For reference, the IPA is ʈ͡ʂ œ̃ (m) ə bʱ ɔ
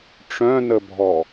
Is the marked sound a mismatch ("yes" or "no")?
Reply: yes